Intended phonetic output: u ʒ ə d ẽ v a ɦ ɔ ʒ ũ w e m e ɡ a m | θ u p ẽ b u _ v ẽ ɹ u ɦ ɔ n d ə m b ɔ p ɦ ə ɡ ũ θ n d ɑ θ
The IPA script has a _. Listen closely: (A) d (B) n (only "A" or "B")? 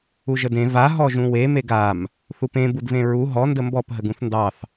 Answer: A